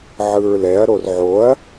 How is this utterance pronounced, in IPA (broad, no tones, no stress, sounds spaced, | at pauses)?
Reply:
ʕ ɯ ɹ l ɛ ɐ̯ ɾ o r ʕ o ɐ̯